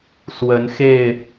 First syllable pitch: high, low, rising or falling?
rising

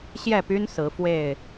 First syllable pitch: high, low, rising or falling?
falling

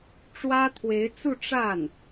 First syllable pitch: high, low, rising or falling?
high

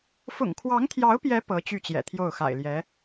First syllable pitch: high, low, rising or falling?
low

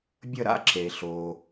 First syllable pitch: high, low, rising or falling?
falling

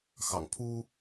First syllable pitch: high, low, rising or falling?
low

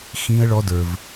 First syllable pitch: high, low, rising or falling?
high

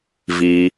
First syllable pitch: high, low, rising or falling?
low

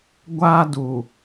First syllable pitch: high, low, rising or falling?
high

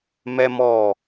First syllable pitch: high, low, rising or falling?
high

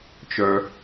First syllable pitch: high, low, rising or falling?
low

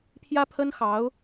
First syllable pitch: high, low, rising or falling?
high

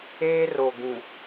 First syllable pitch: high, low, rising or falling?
high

